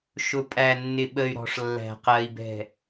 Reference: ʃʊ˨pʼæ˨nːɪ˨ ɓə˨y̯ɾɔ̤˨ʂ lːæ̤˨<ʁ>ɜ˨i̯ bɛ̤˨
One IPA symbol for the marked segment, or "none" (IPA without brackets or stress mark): q